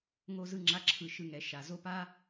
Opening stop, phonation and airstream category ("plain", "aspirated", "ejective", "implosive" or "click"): click